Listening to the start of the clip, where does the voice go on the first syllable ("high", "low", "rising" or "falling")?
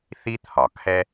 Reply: high